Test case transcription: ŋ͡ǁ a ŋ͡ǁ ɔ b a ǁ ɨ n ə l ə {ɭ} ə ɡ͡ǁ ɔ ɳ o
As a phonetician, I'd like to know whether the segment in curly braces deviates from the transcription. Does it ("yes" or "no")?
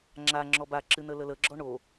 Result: yes